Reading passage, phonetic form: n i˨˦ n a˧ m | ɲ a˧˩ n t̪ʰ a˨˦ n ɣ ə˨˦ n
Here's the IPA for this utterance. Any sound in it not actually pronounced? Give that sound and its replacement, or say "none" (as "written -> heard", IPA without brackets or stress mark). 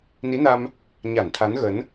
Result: none